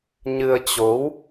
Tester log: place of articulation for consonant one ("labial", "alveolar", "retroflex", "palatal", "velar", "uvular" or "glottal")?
palatal